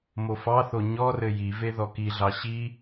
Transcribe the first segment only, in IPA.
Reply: m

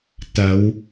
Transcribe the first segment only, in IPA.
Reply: t̪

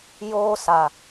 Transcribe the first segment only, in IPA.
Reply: j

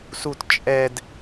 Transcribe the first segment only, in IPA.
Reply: s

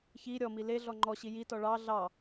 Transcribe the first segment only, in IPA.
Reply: ç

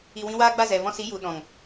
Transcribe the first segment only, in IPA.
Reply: i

